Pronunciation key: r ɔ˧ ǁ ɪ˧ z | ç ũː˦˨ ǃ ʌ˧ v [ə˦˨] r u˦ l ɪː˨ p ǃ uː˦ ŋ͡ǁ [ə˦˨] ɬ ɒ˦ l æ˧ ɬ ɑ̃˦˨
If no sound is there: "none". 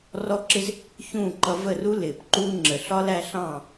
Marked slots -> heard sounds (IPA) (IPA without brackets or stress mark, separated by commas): ə˦˨, ə˨